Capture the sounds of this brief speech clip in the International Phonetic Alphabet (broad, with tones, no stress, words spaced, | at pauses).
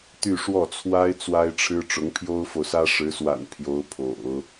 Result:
t̪y˥˧ʂwɔ˥˩t͡sʰwa˥ɪ̯ t͡swa˥ɪ̯ʈ͡ʂʰɻ̩˥ ʈ͡ʂʊ˧˥ŋpʰjo˥ʊ̯fo˨ʊ̯sä˥ ʂɻ̩˧˥swa̰˨˩n pʰjo˧˥ʊ̯pʰo̰˨˩˦ʊ̯